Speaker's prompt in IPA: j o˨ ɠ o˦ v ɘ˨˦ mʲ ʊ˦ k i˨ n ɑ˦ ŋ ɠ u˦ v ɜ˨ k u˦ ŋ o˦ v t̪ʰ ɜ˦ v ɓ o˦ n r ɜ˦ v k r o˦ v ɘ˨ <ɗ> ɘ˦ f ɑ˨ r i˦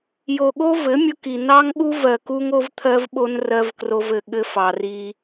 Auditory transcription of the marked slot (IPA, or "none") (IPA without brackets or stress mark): ɠ